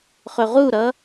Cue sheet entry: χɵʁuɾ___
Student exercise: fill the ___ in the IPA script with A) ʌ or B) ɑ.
A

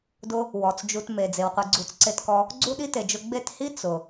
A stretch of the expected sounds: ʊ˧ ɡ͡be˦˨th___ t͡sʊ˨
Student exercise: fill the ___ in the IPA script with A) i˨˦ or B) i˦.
B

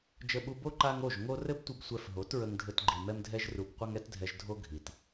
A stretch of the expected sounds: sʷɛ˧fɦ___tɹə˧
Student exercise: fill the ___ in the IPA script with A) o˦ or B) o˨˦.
B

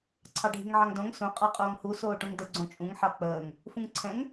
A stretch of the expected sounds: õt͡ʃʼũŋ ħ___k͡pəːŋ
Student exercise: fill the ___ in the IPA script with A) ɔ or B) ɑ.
B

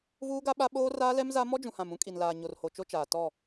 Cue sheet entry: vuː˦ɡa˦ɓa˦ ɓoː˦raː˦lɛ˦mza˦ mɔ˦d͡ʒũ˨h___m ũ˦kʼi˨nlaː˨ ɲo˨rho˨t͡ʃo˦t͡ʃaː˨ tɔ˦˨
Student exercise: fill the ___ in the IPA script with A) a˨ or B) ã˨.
B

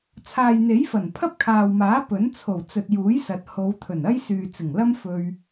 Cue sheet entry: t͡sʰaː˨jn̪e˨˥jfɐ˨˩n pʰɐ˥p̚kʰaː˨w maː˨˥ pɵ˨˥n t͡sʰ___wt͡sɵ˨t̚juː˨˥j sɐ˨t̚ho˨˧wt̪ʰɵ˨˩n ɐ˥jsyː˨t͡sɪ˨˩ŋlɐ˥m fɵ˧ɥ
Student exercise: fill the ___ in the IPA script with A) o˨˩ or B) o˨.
A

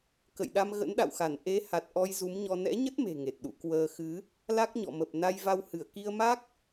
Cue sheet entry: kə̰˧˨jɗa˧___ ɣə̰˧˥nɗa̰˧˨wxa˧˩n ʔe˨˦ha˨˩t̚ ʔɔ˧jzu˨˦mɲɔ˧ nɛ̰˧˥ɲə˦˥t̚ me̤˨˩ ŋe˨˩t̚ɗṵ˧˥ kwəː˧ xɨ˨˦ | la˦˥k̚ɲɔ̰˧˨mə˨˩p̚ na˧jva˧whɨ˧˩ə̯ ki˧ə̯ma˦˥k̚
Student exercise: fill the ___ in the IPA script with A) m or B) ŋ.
A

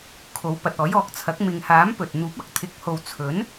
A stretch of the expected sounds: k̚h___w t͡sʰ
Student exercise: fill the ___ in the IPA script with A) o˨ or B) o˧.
A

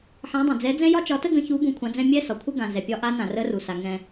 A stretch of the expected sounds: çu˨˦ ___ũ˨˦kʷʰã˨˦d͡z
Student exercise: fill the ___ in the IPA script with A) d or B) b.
B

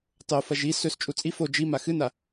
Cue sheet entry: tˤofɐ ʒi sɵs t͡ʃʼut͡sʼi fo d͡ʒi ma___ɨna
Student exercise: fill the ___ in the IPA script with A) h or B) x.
B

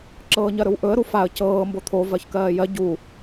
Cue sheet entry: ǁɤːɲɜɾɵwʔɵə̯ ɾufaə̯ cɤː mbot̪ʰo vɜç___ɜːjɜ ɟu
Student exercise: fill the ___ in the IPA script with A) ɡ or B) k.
B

